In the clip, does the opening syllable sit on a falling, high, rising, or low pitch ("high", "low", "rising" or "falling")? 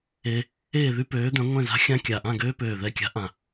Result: high